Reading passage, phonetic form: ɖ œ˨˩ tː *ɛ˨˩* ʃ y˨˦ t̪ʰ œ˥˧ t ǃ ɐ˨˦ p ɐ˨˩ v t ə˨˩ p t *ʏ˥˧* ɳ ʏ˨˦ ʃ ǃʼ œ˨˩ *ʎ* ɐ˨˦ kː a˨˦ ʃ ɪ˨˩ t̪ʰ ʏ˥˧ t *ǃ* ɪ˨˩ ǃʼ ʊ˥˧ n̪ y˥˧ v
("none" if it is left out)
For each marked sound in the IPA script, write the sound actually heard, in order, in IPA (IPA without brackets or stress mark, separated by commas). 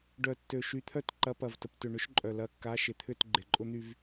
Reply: ø˨˩, ʏ˨˩, l, ɡ͡ǃ